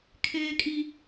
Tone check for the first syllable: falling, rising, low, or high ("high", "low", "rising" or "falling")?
low